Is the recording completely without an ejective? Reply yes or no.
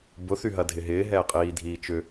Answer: no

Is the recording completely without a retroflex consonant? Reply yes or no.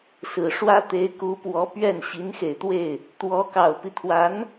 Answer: no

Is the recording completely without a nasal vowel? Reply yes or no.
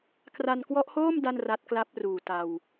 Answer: yes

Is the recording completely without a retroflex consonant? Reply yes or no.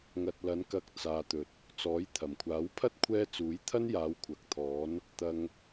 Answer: yes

